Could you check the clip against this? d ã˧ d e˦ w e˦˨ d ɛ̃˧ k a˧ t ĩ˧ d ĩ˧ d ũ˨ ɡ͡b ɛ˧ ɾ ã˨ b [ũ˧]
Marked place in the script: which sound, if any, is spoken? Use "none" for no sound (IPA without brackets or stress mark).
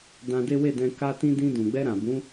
ũ˨˦